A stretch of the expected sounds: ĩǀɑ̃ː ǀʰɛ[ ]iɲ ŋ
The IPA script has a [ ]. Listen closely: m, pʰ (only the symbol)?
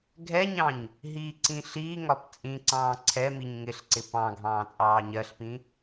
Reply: m